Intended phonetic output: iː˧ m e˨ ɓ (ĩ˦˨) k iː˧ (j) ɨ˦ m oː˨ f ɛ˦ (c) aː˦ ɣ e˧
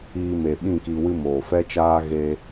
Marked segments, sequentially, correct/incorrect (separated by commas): correct, incorrect, incorrect